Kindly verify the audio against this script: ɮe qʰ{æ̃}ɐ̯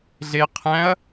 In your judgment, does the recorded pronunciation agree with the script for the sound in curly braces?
yes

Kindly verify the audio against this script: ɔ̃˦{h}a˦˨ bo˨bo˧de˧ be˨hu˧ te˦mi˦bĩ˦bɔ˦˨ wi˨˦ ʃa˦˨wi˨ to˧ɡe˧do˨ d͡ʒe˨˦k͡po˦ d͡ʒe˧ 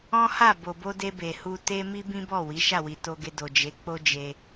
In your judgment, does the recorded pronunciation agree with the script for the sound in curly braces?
yes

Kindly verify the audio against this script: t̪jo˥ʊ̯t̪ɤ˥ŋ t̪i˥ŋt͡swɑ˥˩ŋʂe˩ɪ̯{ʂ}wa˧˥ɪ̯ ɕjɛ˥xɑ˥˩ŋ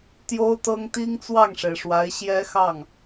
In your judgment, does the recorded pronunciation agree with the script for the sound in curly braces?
yes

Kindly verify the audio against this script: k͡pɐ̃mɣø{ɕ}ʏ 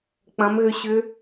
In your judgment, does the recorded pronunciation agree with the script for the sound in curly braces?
yes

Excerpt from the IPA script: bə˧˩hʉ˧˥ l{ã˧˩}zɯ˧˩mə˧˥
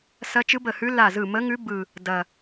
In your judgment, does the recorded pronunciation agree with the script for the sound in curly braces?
no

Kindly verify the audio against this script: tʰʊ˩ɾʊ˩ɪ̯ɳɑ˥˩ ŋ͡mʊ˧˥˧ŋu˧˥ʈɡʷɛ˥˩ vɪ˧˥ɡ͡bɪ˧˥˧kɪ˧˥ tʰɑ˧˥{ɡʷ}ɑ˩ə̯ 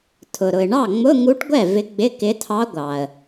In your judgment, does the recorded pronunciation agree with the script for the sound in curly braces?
yes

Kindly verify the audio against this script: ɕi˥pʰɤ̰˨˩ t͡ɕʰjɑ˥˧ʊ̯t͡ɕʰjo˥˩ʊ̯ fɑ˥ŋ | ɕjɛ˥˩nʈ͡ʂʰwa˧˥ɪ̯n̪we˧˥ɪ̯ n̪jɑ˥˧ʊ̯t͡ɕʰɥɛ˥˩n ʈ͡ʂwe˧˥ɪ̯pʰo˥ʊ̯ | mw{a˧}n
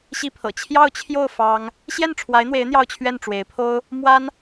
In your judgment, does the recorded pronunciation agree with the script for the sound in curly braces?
no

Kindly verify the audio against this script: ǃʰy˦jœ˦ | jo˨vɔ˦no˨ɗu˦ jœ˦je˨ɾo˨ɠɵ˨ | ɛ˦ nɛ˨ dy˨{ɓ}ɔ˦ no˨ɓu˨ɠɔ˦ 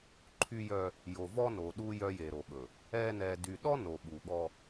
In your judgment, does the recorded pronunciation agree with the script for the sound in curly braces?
no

